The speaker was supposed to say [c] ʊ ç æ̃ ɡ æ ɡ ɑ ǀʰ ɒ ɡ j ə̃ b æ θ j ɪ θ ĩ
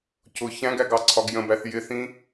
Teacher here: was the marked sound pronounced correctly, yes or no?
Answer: yes